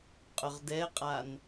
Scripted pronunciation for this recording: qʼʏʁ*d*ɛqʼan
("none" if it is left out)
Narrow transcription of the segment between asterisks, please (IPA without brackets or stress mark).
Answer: d